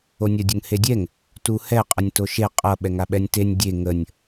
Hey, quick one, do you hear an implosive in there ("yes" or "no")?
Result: yes